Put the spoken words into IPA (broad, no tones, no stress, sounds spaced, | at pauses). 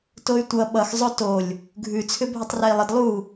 t o y̯ tʷ ʌ ɓ ʌ x zˤ o t o lʲ | ɡʱ ʉ t͡sʰ ʏ bʱ ʏ tˤ r ɛ i̯ lˠ ə d lˠ u